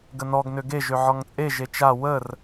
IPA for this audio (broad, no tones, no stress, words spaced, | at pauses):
ɡənɔɡ nøɡe ʒøʕɔŋt͡sʼe ʒet͡ʃa wər